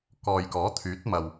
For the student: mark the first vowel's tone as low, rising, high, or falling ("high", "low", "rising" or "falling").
low